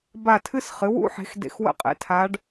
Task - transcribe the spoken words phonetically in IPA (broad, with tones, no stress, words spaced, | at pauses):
ba˦˨tʰɨ˥sχɨ˩˥ wṵ˥ħe̤˩˥x dḛ˦˨xwə̰˥qʼḛ˩˥ tʰa˧˥ɖ